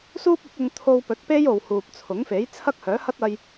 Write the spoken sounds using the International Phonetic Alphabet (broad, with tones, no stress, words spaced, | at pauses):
suː˥p̚ ʊ˨˥k̚ʊ˧ŋ t̪ʰo˧w pɵ˨˥t̚pe˥jo˨w huː˨p̚t͡sʰʊ˨˥ŋfe˨˥j t͡sʰɐ˥k̚hœː˨˥hɐ˥t̚ɐ˧j